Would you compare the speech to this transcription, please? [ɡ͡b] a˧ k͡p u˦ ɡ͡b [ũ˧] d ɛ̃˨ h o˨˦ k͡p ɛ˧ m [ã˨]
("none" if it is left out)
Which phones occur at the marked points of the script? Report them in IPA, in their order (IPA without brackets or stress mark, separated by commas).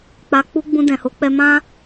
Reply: k͡p, ũ˧, ã˦